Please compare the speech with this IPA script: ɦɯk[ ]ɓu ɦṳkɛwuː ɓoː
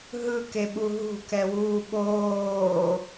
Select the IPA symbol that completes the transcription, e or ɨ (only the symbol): e